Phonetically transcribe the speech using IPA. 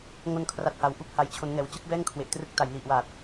ŋ o˧ n kʰ r a˨˩ t̚ h a˩˦ w ʔ u˦˥ k̚ h a˨˩ j t͡ɕʰ o˩˦ n ŋ ɛː˩˦ w t͡ɕ ɯ˦˥ k̚ b ɛː˥˩ ŋ kʰ w e˨˩ ʔ t r ɯ˦˥ k̚ t a˨˩ j l i˨˩ ʔ w aː˨˩ t̚

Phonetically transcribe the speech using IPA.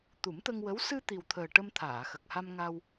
t̪ u˨˩˦ m t̪ ə˧ ŋ w ə˧˥ w s ɨ˧ t̪ i˨˩ w t̪ʰ əː˨˩ ʈ ə˧ m t̪ʰ aː˨˩˨ x ə˨˩ k̚ h a˧ m ŋ a˧ w

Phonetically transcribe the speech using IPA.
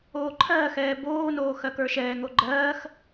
oː ǃʰ ɜː x ɛː b oː n oː x ɜ k ə˞ ʃ ɛː ŋ o ɡ͡ǃ ɜː x

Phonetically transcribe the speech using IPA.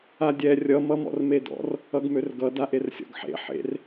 a dʲ ɛ rʲ ʌ m ʌ m ɔ̰ r m e d ɔ̰ r | ʌ ɡ m ø r ɡ ʌ d a ʔ e r sʲ ɔ̰ ɡ ħ ḛ ħ ḛ r

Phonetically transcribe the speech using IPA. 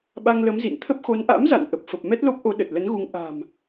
ɓ a˧ ŋ l ə˨˦ m z ḭ˧˨ n t̪ʰ ə˦˥ p̚ x o˨˦ n ʔ a̰˧˥ m z a̰˧˨ n ʔ ə˨˩ p̚ f ə˨˩ p̚ m ɛ˦˥ t̚ l o˦˥ p̚ ʔ o˨˦ ɗ ə˨˩ t̚ l ə˨˦ n ɣ u˨˦ ŋ ʔ a̤˨˩ m

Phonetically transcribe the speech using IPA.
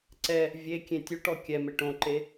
ǀ ɛ | vʲ e kʲ ẽ tʲ u ʈ ɔ kʲ ɛ m e ʈ õ ǃ e

